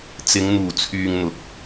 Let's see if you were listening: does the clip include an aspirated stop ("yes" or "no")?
yes